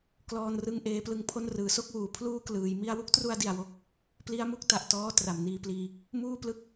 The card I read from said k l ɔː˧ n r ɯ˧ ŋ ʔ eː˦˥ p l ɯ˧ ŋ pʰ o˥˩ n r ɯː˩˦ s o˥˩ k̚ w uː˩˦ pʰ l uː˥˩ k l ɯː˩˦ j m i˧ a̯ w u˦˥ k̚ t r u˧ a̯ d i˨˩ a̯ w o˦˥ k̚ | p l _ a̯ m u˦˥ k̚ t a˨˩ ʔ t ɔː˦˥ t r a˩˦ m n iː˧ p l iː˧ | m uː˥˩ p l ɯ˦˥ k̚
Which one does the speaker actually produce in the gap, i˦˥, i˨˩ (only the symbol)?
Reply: i˦˥